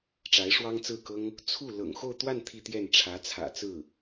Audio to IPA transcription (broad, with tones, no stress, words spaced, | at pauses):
ʈ͡ʂa˧˥ɪ̯ʂwɑ˥ŋt͡sɹ̩˥˩kɤ˥ŋ | t͡sʰu˥˩ lɤ̰˨˩ŋxo˥˧ʊ̯t̪wa˥˧n t̪ʰi˥˧t̪jɛ˥˩n ʈ͡ʂʰä˧˥t͡sʰä̰˨˩t͡sɹ̩˥˩